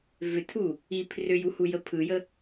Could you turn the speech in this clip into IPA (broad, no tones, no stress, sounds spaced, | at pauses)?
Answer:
v ʏ tʰ u | i pʰ r ʏ j u h u j ə pʰ ɯ j ə